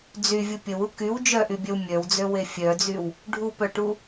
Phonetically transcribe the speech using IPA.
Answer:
d͡zyvʲu pʲəwu kyw d͡ʒœʔybʲœw mʲœwd͡zøwe fʲœd͡zyw | ɖʱupœʈu

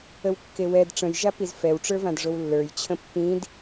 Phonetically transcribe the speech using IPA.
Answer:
əwkːewɛd ʈ͡ʂə̃jʒapiz fɛwʈ͡ʂə˞vãdʐow lːə˞jt͡ɕʰə̃ pːĩd

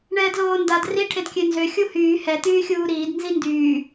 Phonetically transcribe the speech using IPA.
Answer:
ɳɛːdloːndad ri ʈʰedkʲønzø xʲuhyː hɛ t̪yːxʲuːɾiːd nzindyː

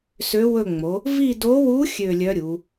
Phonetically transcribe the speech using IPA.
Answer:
sø˧˥wɵ˦˨ŋ͡mo˩˧ | vi˦˨do˧˥wu˧˥ xʲø˦˨lʲœ˧˥ ɾʲu˩˧

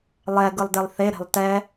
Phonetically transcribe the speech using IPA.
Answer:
lˠɛɡɯlˠdelˠ θeɾe̤lˠ tɛ

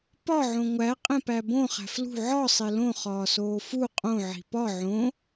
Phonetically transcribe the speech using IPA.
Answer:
pɒ ʕõŋʷæ qʼẽpæbõ χæ̤flṳ ʕɒ sˤelõ χɒːsoːfu qʼõ ʕi̤pɒ ʕõ

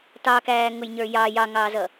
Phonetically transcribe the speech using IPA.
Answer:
tɑkæː ŋʊjɲə˞jɑ jɑŋɑːzʌ

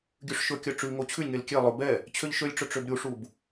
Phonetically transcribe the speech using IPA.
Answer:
ɡʲʉʂʃɵkʲœ ʈ͡ʂʉŋo t͡ɕʰʉlʲŋel kʲe lˠɵ bɛ | t͡ɕʰøʎʃølʲʈ͡ʂɵ ʈ͡ʂøbɾʲuʂub

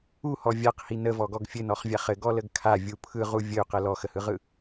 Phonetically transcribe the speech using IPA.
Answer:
uhɔ vʲaqhi nəvɔɡɔɡ fʲɘnɔχvʲaχ ɘɡɔləɡ kʰavʲu pʰɯʁu vʲəu̯qə lɔxəhɯʁɯ

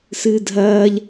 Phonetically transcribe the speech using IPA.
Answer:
sɨːdʱɐːʎ

